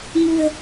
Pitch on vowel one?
low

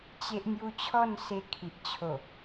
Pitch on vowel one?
high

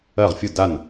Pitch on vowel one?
falling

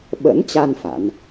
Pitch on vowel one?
rising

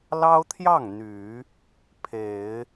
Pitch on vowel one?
high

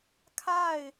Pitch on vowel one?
falling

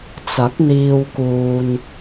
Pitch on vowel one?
rising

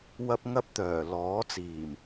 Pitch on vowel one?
high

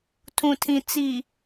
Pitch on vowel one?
low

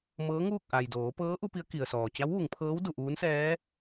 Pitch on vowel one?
rising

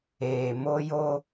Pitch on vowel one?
low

